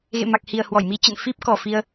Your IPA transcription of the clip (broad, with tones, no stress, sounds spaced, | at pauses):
ɣ ḛ˧˨ m a˨˩ k̚ h i˨˩ ə̯ h w ɔ˧˩ j m i˧ t͡ɕ ə̰˧˨ n f i˦˥ p̚ k ɔ˨˩ f i˧ ə̯